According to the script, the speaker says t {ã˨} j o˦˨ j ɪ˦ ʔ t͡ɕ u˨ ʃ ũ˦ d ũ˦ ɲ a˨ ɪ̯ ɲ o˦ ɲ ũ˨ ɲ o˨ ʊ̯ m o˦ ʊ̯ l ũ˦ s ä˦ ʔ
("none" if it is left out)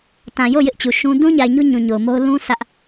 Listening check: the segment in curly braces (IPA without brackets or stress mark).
ã˨